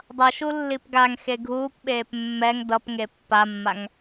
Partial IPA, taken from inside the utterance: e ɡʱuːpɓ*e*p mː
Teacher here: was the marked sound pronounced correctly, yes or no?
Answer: no